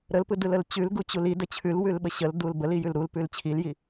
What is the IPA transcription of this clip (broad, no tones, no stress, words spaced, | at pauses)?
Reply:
ɾəlpɯdɯləl t͡ɕʉlɡut͡ɕul idə t͡ɕʰʉlwʉlɓə ɕəldul bəlijʉl ɾulpʉl t͡ɕʰilji